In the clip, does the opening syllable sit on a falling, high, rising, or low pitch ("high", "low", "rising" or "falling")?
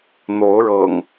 rising